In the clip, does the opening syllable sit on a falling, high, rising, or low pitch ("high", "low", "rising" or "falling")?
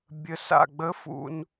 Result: low